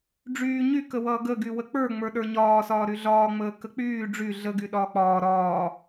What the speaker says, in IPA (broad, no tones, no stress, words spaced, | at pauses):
ɖ͡ʐyː ɲykəwʌː ɡə ɡywək͡pə˞ ŋ͡mə˞ɗə˞ɲɒːsɒː ɾyɮɒːŋ͡məː kək͡pyː ɖ͡ʐy ɮəɡy ɗɒːk͡pɒː ɾɒː